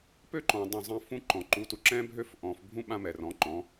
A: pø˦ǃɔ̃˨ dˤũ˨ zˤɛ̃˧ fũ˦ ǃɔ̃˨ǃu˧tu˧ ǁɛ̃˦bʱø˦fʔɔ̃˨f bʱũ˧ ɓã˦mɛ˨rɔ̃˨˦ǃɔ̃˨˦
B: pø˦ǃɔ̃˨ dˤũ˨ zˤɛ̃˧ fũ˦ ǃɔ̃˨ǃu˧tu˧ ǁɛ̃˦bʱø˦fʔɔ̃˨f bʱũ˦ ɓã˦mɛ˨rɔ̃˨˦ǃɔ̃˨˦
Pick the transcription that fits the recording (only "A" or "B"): B